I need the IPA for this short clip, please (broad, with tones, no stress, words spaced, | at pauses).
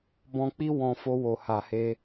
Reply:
bɔ̃˧k͡pi˦ wɔ̃˧ fo˧wo˨ha˨he˧